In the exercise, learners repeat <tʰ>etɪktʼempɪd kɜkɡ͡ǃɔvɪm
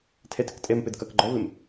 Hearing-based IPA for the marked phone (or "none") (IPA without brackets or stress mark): tʰ